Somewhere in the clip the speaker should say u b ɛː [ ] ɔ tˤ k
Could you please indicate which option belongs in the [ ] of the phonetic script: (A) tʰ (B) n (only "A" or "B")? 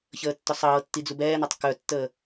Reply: B